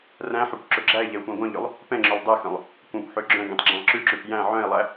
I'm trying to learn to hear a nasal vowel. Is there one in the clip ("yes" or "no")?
yes